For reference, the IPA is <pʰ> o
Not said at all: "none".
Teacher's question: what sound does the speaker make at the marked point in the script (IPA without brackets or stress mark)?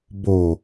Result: b